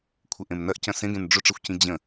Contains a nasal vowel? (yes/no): yes